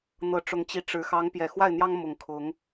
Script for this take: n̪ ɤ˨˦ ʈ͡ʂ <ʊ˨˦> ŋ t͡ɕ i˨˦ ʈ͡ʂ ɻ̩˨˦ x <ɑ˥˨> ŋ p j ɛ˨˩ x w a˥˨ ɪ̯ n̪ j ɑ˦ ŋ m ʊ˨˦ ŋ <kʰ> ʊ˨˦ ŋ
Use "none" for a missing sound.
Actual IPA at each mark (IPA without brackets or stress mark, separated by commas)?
ʊ˨˦, ɑ˨˦, kʰ